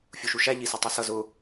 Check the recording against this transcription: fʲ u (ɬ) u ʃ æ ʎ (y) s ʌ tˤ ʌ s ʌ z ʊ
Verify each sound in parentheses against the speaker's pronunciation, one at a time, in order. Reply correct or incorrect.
incorrect, incorrect

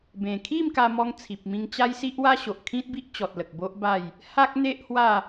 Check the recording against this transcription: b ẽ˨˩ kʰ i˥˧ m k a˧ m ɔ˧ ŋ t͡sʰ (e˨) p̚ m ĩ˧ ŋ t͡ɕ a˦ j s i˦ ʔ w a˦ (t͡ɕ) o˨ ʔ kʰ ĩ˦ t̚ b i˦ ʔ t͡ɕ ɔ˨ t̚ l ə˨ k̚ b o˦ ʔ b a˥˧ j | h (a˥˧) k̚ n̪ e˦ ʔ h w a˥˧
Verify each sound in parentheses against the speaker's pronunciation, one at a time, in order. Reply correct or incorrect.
incorrect, incorrect, incorrect

